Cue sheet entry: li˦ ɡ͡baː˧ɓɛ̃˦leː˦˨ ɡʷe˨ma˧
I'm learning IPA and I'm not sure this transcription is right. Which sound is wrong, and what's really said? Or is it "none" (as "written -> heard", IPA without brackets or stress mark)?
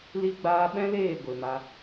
none